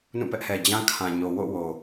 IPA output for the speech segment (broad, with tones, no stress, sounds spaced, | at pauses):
n ũ˦˨ p ɛ˦ ʔ h ɛ˨ d͡ʑ ã˦ kʰ ã˨ ɲ o˨ w o̰˦˨ w o˨